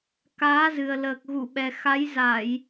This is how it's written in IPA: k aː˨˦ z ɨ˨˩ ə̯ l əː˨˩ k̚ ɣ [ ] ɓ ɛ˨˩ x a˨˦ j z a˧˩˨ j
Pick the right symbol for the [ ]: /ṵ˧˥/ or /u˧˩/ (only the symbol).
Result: u˧˩